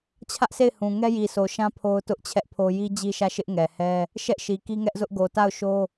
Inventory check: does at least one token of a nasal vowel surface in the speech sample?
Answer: yes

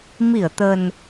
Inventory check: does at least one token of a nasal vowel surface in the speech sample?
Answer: no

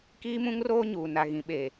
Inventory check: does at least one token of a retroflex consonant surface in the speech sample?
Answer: no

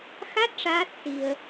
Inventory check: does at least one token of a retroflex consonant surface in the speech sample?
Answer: yes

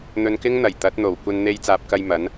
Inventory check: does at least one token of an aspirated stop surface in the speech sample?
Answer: no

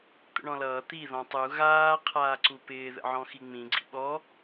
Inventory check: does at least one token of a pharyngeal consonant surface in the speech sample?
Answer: yes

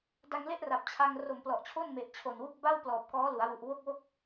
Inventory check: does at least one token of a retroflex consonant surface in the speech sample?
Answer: no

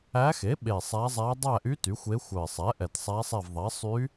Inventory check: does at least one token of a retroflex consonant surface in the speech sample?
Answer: no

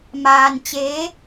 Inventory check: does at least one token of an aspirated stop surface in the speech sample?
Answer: no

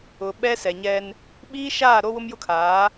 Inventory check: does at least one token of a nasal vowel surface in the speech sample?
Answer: no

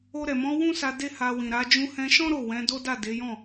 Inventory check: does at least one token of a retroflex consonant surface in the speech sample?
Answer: no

